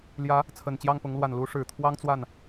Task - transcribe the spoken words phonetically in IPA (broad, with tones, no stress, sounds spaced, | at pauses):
l j ä˧˥ | t͡sʰ ə˨˩ n t͡ɕ j ɑ˥˩ ŋ p ʊ˧˥ ŋ l w a˨˩ n l u˧˥ ʂ ɻ̩˨˩ t̪ʰ w ɑ˥ ŋ t͡s w a˥˩ n